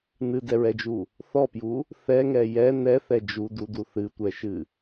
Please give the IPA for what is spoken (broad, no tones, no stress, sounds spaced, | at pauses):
n ɨ d ɛ ɹ ɛ d͡ʒ u | θ ɔ p j u | θ ɛ ŋ ɛ j ɛ n ɛ θ ɛ d͡ʒ u d u d u θ ɨ tʷ ɛ ʃ ɨ